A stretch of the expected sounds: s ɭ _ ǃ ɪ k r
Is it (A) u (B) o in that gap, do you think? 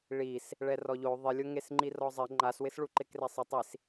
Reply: A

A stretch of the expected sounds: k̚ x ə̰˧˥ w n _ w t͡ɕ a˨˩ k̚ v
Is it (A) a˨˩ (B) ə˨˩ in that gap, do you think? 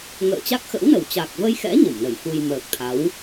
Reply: B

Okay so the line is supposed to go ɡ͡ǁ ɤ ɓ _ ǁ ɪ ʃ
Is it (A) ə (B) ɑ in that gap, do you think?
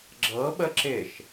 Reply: A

